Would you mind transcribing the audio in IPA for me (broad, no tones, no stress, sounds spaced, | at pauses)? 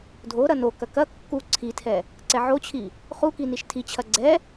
dʱ o ɾ ɐ n o k ɐ k ɐ kː u ǀʰ i tʰ ɛ | ǀ ɛ ʕ o t͡ɕʰ i | χ u k i n i ʃ tʰ i t͡ɕʰ ɐ ɡ͡ǀ ɛ